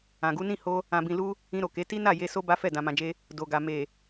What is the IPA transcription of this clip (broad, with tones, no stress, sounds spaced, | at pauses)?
ã˨ ɡ u˨˦ n ĩ˦˨ h o˧ | ã˨ b ĩ˨ l u˧ | ĩ˧ ɾ o˨ k e˨˦ t i˦ n a˦˨ j e˧ s o˦ b a˦ f ɛ˦˨ d ã˧ m ã˧ d͡ʒ e˦ | d o˨ ɡ a˨ m e˨